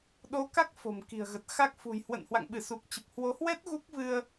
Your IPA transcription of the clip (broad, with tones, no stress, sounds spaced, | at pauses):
ɗ o˨˦ k a˦˥ k̚ f o̤˨˩ m k i̤˨˩ ə̯ ɣ ə˨˩ t̚ x a˦˥ k̚ f ṳ˨˩ j h w ə̰˧˨ n h w a̰˧˨ ŋ ɓ ɨ˧˩ s u˨˩ k̚ t͡ɕ ə˨˩ p̚ h w o˨˦ h w ɛ˦˥ t̚ ɣ u˦˥ k̚ v ɨ˧ ə̯